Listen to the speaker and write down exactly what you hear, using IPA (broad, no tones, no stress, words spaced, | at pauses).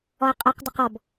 ɔə̯qʼɘq dɘqɔb